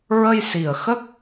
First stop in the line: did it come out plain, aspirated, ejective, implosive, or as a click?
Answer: plain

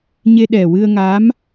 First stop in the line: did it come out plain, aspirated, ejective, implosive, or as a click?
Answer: implosive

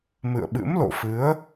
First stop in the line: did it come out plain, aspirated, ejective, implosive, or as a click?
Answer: implosive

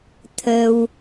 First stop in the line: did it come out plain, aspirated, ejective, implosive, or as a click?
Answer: aspirated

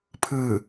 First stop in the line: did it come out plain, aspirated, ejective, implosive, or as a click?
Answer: aspirated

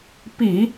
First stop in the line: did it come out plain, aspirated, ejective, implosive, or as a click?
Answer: plain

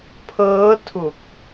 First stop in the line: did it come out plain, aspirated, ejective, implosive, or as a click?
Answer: aspirated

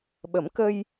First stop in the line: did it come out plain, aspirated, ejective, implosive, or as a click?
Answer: implosive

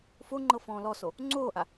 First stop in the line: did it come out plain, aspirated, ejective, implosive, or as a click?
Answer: click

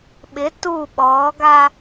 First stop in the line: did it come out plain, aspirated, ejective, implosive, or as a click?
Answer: implosive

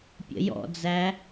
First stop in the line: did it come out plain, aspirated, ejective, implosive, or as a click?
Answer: plain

